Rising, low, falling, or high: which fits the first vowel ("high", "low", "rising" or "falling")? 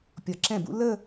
low